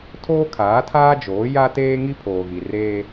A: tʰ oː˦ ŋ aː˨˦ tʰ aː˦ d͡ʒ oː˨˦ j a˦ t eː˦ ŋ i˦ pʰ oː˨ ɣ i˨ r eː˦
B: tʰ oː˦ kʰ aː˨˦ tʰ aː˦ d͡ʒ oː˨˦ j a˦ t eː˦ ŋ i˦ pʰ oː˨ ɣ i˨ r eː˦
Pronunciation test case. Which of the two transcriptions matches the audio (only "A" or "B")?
B